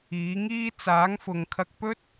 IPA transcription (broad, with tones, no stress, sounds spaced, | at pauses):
iː˨˥ ŋ iː˥ t͡s aː˨˥ ŋ f ʊ˨ ŋ kʰ ɐ˧ k̚ p ɵ˥ t̚